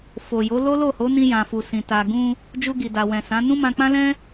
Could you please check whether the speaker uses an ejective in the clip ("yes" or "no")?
no